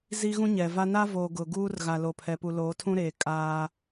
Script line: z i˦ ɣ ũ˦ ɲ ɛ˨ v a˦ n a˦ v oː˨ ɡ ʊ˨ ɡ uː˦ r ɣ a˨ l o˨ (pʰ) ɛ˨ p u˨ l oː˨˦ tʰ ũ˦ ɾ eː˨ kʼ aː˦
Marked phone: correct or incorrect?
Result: correct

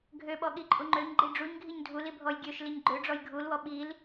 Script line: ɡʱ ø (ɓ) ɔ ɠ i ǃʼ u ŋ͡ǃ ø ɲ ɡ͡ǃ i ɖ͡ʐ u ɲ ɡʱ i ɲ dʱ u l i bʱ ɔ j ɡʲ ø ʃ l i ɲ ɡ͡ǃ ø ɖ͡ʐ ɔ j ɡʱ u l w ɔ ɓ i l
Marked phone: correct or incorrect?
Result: correct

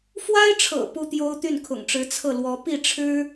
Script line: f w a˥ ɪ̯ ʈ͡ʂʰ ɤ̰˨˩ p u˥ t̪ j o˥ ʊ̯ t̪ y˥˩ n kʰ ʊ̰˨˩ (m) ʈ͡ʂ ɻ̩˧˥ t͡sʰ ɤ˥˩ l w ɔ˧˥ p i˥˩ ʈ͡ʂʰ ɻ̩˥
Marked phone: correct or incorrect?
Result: incorrect: ŋ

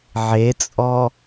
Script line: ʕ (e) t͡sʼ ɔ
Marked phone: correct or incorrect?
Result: correct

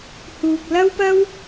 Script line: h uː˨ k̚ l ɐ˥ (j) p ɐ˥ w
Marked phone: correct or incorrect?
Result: incorrect: w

